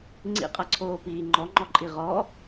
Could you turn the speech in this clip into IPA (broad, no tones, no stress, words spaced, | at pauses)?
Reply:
ŋ͡ǀḭqʼɐǀʰoːpiː ŋ͡ǃɔŋ͡ǃɔǃʼi ʁɔ